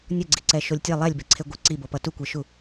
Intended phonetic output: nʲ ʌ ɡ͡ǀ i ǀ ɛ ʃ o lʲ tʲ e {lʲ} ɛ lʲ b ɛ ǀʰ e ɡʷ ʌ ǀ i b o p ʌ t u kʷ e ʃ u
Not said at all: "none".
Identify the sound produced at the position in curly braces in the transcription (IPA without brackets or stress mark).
lˠ